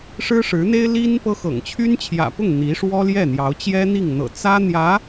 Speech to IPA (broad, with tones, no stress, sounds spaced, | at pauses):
ʂ ɻ̩˥ ʂ ɻ̩˧˥ n̪ e˥ ɪ̯ l i˥ n p ɤ˥ x ɤ̰˨˩ ŋ t͡ɕʰ y˥ n t͡ɕʰ j ä̰˨˩ p ʊ˥˩ ŋ n̪ i˧˥ ʂ w ɔ˥ l j ɛ˥˩ n̪ j ɑ˧˥ ʊ̯ t͡ɕ j ɛ˥ n̪ i˥˩ ŋ n̪ ɤ̰˨˩ t͡s ä˥ n̪ j ä˧˥